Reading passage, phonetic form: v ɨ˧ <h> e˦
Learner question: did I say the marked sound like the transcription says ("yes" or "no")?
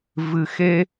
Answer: no